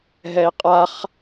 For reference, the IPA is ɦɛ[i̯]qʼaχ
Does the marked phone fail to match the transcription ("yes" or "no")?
no